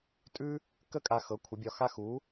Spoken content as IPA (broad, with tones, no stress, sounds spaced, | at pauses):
tʼ ʉ˥ | k ə˥ kʼ a˧ x ɤ˨˥ kʷʰ ə˨˥ bʲ ɒ˧ x a˥ x u˨˥